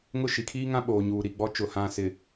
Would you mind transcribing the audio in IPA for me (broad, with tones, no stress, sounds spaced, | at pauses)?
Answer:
ŋ ʊ˦˨ ʃ i˨ kʰ iː˦ ŋ ã˦ ɓ oː˨ ɲ uː˨ ɾ i˨ ɡ͡b ɔ˦ t͡ʃ ʊ˦˨ h ã˦˨ s ɪ˨